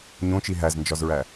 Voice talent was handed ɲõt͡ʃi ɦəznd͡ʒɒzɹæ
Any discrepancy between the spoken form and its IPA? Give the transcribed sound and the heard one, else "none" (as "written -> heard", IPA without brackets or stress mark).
ə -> æ